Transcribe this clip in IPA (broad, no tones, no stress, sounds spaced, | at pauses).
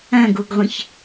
ɐ̃ ɡ o ɡ ʁʷ ɐ̃ ç